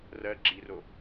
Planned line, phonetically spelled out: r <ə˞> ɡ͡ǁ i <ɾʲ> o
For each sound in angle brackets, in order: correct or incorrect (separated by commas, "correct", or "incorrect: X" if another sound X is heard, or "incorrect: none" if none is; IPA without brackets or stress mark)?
incorrect: ɜ, incorrect: r